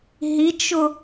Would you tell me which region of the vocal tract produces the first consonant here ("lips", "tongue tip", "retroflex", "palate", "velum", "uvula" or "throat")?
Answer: throat